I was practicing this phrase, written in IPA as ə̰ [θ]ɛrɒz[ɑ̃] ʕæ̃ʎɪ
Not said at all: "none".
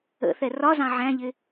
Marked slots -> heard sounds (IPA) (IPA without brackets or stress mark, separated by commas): θ, ɑ̃